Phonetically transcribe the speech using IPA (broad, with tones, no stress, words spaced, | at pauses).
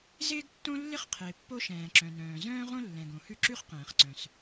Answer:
zɪː˥ɡtːõ˥ lːɪ˥χqʰɪː˩ pːo˥ʃɛ̃ː˩ǁœ̃˩nœ̃ː˩ zœ̃ː˥ʁõ˥ lːɛ̃˩ɡõ˩hʉ˥ ǁʉ˥χqɛ̃ː˩χǀœ̃˩s